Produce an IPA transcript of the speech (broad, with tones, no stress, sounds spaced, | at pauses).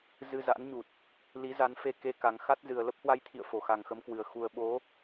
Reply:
z ɨ˧ z a̰˧˥ n ɲ u˨˩ t̚ | l i˨˦ z a˨˦ n f e˧ k e˧ k a˨˩ ŋ x a˦˥ t̚ z ɨ˨˩ ə̯ l ə˦˥ p̚ h w a˧ j t̪ʰ ḭ˧˨ ə̯ f o˧˩ x a˨˩ ŋ x ə˨˦ m k w ɨ˨˩ ə̯ x u˨˩ ə̯ ɓ o˨˦